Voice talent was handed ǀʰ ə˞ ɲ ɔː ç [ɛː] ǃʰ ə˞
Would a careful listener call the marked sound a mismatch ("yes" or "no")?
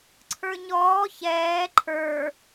no